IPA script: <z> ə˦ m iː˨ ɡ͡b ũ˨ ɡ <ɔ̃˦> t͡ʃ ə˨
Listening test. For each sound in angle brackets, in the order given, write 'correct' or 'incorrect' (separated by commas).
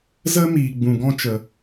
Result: correct, correct